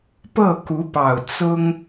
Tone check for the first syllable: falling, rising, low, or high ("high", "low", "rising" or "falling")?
falling